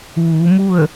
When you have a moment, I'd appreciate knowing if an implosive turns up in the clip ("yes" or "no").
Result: no